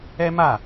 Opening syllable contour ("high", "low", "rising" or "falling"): high